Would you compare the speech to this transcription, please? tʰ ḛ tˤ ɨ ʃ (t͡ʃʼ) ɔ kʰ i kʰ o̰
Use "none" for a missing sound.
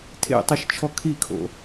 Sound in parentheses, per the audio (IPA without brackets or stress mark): t͡ʃʰ